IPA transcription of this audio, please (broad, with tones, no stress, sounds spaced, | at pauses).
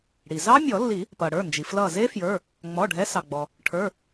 ɽ i˩ z ɑ˦˥ mʲ ɔ˨˩˦ lː i˨˩˦ | p ʌ˩ ɽ ə˞˩˧˩ n d͡ʒ i˩ f l ʌ˧˩ z e˦˥ f j ə˞˩˧˩ | ŋ͡m ɔ˩˧˩ ɖʱ ɛ˨˦ s ɑ˩ ɡ͡b ɔ˩ | ʈʰ ə˞˩˧˩